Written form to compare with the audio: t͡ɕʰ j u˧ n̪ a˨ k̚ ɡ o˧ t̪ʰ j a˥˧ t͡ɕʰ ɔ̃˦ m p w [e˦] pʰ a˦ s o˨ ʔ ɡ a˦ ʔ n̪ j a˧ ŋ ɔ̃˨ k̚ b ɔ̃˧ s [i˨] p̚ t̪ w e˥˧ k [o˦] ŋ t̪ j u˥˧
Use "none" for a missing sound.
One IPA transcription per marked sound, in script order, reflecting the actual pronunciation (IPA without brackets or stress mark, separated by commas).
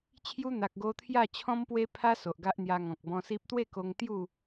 e˦, i˦, o˧